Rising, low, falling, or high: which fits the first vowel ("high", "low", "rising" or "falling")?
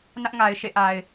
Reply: high